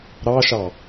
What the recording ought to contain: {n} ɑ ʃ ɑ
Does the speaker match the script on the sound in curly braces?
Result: no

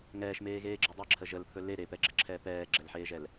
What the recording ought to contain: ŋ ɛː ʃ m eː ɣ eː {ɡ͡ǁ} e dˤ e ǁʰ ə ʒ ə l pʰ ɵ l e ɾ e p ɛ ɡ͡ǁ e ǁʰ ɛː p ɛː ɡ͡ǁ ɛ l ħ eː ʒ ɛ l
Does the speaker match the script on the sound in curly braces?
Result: yes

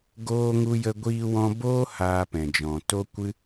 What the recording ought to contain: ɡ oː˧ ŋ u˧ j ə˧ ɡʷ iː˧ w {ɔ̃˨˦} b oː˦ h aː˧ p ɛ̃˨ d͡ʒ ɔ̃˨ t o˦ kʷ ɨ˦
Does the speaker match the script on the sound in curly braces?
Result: no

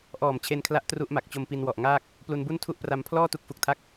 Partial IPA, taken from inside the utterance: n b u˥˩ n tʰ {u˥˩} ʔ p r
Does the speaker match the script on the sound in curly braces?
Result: yes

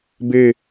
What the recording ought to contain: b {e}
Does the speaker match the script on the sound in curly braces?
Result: yes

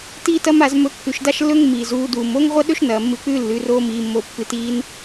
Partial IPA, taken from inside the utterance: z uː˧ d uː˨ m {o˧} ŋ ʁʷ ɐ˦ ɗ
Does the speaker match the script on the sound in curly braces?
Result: no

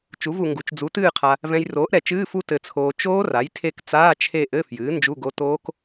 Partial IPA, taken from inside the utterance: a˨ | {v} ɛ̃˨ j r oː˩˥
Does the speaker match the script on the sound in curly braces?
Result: yes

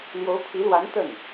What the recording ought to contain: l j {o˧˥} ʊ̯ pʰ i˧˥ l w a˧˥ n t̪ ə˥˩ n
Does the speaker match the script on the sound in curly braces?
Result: yes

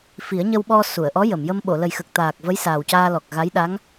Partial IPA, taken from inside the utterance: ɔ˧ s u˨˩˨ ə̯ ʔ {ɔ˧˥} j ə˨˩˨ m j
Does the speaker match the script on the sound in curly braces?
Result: yes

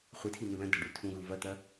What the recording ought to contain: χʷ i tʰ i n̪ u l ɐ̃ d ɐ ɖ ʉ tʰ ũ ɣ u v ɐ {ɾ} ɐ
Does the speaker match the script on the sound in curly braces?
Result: no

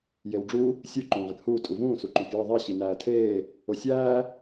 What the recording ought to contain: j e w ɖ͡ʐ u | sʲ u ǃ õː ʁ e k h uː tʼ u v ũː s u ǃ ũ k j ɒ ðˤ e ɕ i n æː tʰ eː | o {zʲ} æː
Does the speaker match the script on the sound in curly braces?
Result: no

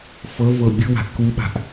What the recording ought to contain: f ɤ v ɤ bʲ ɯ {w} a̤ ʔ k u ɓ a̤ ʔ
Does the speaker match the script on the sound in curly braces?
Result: yes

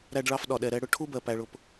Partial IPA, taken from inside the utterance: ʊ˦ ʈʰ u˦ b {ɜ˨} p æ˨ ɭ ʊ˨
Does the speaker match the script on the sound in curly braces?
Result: yes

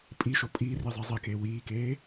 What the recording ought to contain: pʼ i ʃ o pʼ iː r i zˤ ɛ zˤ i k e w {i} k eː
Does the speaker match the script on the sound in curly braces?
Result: no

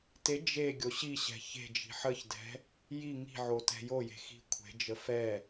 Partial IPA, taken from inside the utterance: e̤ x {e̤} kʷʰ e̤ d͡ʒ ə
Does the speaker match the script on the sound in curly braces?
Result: no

